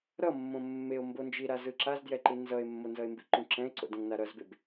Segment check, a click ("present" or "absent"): present